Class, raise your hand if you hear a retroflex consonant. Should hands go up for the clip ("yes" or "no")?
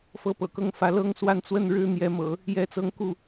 yes